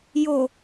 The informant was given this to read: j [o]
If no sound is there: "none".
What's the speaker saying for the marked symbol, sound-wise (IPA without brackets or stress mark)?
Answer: o